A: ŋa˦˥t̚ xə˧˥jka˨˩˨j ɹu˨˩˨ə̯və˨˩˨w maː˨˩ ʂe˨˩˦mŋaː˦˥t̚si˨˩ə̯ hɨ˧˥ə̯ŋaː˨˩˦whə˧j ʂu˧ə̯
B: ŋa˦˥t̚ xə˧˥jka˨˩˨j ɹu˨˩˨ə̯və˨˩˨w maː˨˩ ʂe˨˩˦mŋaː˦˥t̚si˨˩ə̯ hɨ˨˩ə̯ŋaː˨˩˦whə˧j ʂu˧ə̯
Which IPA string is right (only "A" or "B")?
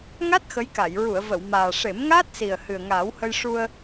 B